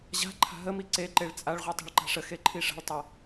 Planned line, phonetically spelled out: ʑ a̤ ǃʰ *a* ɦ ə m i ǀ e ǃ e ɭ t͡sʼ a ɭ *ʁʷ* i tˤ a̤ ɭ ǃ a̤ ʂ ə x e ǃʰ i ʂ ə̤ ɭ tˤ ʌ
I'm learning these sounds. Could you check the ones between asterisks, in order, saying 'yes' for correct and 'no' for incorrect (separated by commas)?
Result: no, yes